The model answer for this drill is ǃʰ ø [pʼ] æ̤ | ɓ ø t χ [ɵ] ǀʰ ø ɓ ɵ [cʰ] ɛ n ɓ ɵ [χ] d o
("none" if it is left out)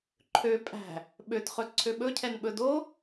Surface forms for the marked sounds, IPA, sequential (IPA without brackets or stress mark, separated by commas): pʼ, ɵ, cʰ, none